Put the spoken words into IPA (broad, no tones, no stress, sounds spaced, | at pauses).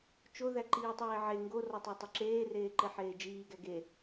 t͡ʃ o ð æ ǃ iː tˤ eː ʕ e ŋ ɡ o r ɒ tˤ æ tˤ o ǁ eː r eː ǃ e ħ eː d͡ʒ iː ɡ æ ɡ e